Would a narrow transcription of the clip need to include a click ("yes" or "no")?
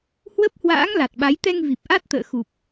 no